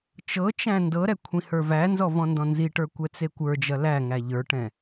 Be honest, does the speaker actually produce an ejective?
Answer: no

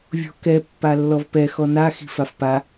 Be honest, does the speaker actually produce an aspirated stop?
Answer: no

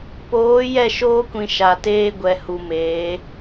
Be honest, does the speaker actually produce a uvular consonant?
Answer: no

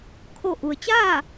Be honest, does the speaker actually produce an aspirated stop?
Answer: yes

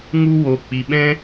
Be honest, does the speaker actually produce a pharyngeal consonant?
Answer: no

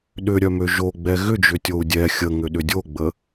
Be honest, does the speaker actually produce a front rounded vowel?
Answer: yes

